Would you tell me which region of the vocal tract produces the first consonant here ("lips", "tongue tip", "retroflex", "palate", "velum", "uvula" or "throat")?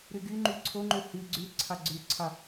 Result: tongue tip